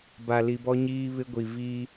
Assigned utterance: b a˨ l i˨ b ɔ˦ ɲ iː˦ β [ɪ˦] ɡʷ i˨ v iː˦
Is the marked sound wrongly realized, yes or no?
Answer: no